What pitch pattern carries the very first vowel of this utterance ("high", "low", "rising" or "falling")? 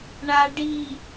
low